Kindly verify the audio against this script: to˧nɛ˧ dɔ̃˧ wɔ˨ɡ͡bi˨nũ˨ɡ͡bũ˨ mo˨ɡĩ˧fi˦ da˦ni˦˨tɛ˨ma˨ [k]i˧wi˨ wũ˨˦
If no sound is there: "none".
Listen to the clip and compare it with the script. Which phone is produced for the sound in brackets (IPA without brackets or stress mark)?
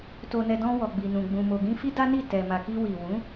k